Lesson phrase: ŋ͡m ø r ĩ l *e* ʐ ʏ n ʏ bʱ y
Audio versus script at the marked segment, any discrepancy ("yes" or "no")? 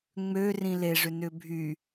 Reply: no